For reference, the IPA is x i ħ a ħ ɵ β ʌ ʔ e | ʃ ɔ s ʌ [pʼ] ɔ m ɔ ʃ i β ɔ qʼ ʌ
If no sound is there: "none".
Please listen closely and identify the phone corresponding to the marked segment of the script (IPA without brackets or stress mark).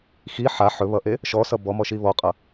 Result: b